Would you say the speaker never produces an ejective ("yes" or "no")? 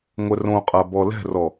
no